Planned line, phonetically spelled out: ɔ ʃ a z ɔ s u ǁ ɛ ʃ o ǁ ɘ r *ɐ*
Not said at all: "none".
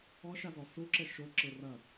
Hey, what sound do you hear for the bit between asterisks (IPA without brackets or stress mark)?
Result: ɐ